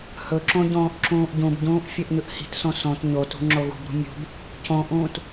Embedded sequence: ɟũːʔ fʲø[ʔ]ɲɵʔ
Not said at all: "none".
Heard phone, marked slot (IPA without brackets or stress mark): ʔ